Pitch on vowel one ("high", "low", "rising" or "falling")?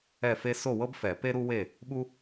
falling